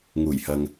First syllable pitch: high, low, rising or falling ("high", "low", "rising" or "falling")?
low